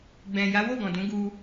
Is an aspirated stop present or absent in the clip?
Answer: absent